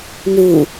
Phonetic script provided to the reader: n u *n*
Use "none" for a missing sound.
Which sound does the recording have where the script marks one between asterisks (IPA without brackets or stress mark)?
none